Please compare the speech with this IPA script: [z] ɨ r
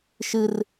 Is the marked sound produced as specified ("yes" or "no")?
no